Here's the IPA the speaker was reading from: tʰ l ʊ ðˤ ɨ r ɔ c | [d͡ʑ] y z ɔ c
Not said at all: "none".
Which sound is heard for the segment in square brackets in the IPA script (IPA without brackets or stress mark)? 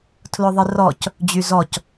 d͡ʑ